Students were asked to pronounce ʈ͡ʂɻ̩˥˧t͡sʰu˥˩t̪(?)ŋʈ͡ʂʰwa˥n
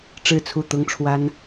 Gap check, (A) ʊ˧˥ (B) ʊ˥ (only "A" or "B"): B